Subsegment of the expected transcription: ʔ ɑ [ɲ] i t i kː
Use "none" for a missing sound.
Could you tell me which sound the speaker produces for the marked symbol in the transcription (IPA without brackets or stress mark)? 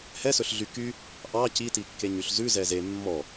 c